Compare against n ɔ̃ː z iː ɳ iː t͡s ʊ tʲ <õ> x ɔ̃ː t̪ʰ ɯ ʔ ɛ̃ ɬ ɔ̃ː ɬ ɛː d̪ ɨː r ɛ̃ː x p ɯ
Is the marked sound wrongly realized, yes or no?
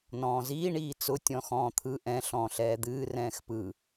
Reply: yes